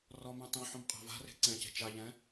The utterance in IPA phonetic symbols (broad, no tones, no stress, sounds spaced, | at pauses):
r ɔ m ɛ̃ tˤ õ ħ õ m qʼ a̤ v a̤ r e̤ ǀ ɛ̃ c e̤ t͡ʃ a ʎ ɛ̃